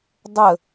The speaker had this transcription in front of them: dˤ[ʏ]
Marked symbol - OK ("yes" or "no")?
no